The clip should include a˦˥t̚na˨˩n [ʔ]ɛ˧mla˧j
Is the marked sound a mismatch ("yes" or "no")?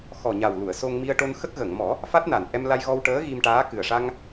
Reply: no